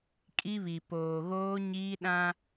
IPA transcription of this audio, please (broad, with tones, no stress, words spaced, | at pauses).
kʼi˦βi˨ poː˨ɣoː˦ɲiː˦ ɗã˦